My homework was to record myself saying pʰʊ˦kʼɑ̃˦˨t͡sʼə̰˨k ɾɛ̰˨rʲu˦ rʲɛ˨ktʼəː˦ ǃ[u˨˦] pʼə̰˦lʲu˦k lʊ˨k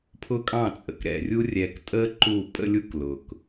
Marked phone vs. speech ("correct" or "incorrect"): incorrect